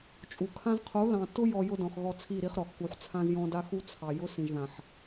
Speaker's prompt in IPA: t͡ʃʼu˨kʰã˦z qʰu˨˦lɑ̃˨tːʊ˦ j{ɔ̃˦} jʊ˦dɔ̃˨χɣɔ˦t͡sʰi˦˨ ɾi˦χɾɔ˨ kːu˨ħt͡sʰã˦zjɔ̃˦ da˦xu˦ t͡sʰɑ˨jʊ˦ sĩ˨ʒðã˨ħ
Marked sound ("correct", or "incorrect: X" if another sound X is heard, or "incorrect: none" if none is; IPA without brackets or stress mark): incorrect: ɔ˦